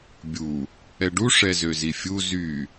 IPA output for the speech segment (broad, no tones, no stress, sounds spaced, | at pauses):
bʲ u | ɛ ɖ u ʂ ɛ z ø z i fʲ u z y